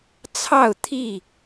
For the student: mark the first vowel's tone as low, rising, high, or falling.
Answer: falling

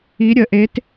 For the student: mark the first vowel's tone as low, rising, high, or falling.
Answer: rising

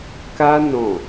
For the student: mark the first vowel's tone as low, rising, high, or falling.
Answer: high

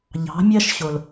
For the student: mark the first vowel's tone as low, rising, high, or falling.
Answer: rising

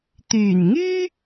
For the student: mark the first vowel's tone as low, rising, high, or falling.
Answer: low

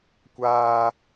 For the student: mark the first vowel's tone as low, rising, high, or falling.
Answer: high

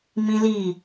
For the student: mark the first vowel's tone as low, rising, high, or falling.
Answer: high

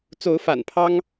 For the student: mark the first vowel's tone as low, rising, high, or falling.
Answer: rising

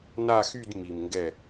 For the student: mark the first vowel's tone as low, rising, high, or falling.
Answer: falling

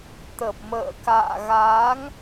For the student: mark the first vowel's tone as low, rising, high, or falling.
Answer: low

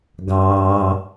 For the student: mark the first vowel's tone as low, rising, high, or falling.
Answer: low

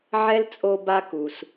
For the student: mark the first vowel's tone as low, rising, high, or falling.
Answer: high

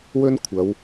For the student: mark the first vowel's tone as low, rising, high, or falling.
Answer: high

